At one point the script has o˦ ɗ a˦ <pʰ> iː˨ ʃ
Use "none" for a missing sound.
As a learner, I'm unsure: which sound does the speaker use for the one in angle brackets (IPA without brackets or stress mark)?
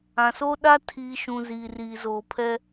tʰ